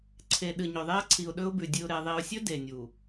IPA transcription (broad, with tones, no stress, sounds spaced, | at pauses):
ǀʰ e˨ ɗ ɨ˨ ɲ ɵ˨ ðˤ e˦ ə̯ ǀʰ i˨ ʊ̯ ɗ ɵ˦ ʊ̯ b ʉ˨ dʲ ɨ˨ ʊ̯ ɾ e˨ ðˤ i˨ ʊ̯ sʲ ɵ˦ d e˨ nʲ u˨